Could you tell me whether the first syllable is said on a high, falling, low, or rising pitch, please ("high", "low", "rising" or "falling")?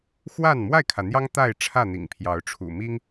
falling